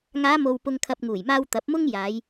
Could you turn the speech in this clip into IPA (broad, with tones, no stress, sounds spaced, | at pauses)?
ŋ aː˨˧ m o˨ w p ʊ˨ ŋ kʰ ɐ˨ p̚ ŋ uː˨˩ j m aː˧ w t̪ ɐ˨˥ p̚ m ʊ˥ ŋ j aː˨˧ j